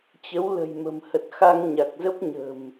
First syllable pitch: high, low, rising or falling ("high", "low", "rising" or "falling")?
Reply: rising